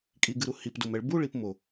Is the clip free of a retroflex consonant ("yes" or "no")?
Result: no